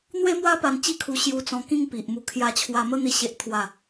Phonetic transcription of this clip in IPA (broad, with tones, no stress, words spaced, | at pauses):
n̪we˦mwa˦pa˧n t͡ɕi˥˧kʰu˧ ɕju˧t͡sɔ̃˧ kĩ˥˧ŋpi˨ʔmu˧ kʰja˧t͡ɕʰwa˧mə˦ n̪i˦ɕe˦ʔt̪ʰwa˥˧